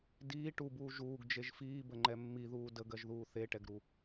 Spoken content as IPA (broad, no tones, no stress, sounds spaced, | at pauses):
d iː ʈ u b uː ʒ uː ɡ d͡ʒ e ʒ f iː b ə ŋ͡ǃ ɛ mː i ð uː d ə ɡ ɜ ʒ ð uː θ e ʈ ɛ ɡ ɾ u